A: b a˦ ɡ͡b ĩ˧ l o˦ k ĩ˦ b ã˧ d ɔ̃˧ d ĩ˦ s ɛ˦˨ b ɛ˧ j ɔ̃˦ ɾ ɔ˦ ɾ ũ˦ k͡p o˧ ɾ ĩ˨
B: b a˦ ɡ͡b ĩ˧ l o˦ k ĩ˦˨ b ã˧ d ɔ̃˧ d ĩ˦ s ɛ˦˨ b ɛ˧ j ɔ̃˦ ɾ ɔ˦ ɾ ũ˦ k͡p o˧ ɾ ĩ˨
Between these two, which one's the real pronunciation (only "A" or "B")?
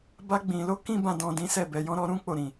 A